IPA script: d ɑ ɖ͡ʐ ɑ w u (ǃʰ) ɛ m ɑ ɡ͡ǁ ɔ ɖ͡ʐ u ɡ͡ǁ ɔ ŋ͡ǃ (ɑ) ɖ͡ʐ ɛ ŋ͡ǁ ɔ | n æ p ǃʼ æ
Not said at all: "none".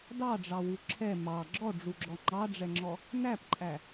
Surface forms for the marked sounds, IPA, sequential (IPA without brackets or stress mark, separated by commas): ǁʰ, ɑ